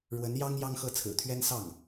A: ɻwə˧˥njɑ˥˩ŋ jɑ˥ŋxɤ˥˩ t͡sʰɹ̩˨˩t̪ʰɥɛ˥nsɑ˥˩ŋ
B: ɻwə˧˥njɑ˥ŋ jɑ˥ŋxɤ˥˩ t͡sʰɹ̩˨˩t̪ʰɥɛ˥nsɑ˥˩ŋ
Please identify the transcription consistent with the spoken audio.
B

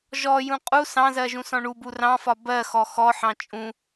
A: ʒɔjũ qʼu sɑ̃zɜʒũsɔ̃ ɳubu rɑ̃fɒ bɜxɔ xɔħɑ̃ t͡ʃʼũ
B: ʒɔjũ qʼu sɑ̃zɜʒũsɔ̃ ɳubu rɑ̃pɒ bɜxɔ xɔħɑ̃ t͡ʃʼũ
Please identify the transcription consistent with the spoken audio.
A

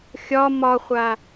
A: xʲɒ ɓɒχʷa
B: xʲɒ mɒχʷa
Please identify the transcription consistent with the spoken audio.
B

